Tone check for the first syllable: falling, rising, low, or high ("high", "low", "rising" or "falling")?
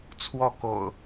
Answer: falling